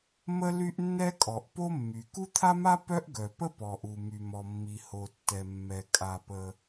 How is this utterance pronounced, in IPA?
m ə˥ l y˥ ʔ nː ɛ˥ kʼ ɔ˩ ʔ p o˥ mː y˩ k u˥ t̪ʰ a˥ m a˥ p œ˥ ʔ ɡ œ˩ p ə˥ p ɔ˩ ʔ u˩ m y˩ m ɔ˩ mː i˩ h o˩ tː ɛ˩ mː ɛ˩ kʼ a˩ p ə˩

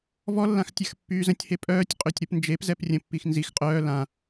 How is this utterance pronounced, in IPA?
v ɔ lː ã x tʲ a x pː yː z ə̃ tʲ h e pʼ œː tʲ qʼ ø tʲ ɾ u p n d͡ʒ e p z ɛ p rʲ ə̃ pː i x n z i x qʼ œː l ã

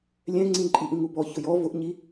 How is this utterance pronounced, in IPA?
lʲ ɛ̃ ŋ͡ǀ ĩ ǃʼ i ʔ ĩ ŋ u b ɔ ç ʊ j ɔ v ʊ ʔ ɲ i

